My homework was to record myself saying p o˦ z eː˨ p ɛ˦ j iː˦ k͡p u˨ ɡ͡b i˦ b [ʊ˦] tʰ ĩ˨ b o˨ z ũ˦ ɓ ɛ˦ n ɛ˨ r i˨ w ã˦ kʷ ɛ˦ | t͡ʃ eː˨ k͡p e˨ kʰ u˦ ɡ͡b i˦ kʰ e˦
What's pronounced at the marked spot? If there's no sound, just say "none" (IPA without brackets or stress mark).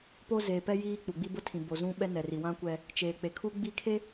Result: ʊ˦